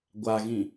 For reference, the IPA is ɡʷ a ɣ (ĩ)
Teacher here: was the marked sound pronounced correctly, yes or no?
yes